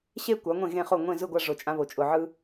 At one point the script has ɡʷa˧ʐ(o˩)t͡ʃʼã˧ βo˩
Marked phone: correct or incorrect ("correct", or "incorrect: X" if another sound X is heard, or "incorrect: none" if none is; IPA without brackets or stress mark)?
correct